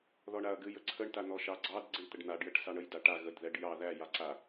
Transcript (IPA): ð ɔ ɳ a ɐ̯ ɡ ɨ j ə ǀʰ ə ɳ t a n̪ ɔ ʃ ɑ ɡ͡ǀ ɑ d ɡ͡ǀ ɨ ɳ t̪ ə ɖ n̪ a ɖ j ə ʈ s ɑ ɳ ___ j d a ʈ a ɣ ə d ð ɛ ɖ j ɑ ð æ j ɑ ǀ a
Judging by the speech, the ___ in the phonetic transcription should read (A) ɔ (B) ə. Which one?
B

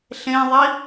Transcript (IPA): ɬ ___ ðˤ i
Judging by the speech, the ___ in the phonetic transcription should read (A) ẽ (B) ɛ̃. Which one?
A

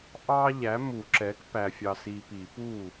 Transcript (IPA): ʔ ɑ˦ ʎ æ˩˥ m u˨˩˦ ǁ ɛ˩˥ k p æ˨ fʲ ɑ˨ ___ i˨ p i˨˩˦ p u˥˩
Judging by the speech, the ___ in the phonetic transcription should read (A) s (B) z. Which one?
A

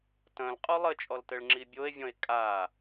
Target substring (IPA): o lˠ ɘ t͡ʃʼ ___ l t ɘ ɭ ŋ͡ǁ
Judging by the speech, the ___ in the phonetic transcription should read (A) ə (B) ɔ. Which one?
B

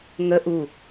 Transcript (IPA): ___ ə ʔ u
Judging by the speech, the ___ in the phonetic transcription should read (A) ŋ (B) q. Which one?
A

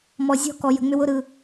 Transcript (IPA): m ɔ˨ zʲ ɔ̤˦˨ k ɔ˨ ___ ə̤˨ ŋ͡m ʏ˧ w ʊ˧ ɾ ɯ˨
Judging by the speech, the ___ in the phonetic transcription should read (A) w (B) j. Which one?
B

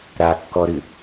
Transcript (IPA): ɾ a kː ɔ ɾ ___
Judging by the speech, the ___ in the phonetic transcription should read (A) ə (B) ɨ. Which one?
B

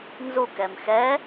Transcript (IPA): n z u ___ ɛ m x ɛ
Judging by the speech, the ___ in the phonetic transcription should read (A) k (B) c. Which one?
A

